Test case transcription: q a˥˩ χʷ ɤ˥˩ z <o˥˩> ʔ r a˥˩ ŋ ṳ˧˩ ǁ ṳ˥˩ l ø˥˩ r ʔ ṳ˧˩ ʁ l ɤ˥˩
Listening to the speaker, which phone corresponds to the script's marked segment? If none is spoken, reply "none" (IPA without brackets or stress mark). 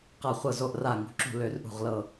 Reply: o˥˩